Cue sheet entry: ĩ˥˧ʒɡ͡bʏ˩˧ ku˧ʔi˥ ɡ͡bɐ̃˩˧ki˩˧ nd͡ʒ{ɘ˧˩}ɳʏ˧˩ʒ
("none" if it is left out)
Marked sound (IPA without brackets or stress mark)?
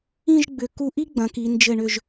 ɘ˧˩